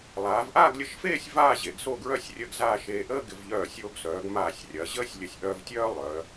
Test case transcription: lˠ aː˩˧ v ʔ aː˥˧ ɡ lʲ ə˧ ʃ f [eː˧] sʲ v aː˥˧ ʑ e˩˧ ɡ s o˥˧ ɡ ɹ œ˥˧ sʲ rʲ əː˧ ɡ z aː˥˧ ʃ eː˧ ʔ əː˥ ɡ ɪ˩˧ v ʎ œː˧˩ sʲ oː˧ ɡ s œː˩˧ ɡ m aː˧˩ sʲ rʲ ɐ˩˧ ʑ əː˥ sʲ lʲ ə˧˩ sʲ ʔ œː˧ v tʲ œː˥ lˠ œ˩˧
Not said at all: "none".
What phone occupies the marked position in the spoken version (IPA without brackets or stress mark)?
eː˥˧